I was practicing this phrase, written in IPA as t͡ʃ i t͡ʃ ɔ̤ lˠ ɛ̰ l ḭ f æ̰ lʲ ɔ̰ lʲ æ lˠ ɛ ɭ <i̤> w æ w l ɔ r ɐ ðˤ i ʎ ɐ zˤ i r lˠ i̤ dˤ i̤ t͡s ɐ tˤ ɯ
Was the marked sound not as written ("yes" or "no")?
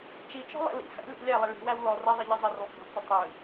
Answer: no